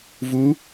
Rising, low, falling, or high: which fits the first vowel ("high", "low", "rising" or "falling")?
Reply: rising